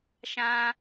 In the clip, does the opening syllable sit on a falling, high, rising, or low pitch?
high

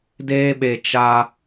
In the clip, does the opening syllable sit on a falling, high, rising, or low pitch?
high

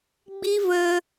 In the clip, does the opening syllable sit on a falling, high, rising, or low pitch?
high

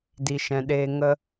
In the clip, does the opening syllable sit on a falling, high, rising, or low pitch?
low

